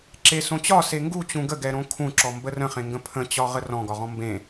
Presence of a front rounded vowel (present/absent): absent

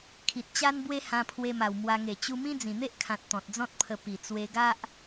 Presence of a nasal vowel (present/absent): present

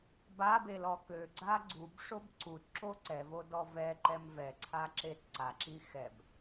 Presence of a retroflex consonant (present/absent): present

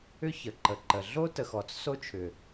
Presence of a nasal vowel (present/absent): absent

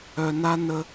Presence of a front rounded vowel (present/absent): present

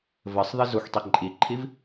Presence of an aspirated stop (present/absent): present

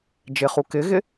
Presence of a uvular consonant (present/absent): present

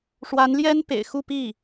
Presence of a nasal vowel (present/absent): absent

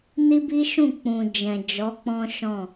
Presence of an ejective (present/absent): absent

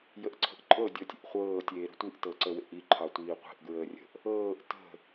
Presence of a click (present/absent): present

